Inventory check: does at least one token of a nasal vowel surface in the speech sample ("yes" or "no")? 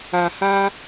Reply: no